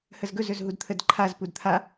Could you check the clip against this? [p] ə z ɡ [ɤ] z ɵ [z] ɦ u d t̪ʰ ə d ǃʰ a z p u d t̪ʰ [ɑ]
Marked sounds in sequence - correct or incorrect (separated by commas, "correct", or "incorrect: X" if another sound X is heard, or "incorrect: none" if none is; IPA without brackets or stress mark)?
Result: incorrect: h, incorrect: ɵ, correct, incorrect: a